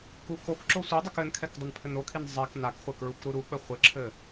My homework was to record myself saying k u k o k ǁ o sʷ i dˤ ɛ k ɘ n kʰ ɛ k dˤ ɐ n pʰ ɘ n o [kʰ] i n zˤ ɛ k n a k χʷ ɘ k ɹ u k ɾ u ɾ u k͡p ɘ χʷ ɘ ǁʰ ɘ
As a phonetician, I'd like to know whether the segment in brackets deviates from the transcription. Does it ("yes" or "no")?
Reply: no